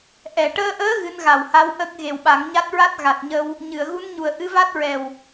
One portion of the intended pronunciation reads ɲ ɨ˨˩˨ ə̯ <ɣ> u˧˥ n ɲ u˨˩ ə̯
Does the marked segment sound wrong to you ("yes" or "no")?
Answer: no